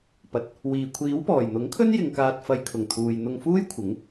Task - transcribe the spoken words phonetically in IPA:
pɐ˨t̚ | wiː˨˩kʷʰiː˨˥wpɔː˨˩j n̪ʊ˨˥ŋkʰɵ˥n jɪ˧ŋkaː˧t̚ fɐ˨˧j kʰʊ˨˩ŋt̪ʰuː˨j n̪ʊ˧ŋfuː˥jkʷʰɪ˨˥ŋ

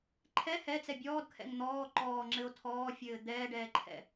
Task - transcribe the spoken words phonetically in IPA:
ǃʰɛ hɛt͡sɛ bʲɔːdkʰɛ̰ŋ n̪ɔː ǃɔːŋ͡ǁɘo̯ tʰɔːfʲɘː d̪ɛːɖɛːǃʰɛ̰

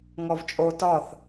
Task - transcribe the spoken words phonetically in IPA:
ŋɔvt͡ʃʼo tɒθ

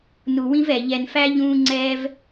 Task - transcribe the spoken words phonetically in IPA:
nu˧wĩ˥vɛ˧ ʎɛ˧nfæ˥ ʎũː˥ŋ͡ǀɛː˥v

